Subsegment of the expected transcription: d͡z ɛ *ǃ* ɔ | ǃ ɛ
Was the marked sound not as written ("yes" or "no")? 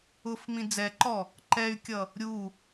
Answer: no